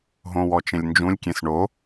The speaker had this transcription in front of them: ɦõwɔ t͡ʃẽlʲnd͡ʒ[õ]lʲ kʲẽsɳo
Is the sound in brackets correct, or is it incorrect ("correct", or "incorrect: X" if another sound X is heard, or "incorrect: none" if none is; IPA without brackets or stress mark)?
incorrect: ũ